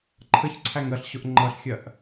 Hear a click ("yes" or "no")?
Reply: yes